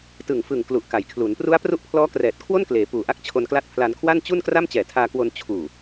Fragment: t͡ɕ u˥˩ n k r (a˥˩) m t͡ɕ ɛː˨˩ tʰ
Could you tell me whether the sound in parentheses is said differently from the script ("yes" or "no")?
no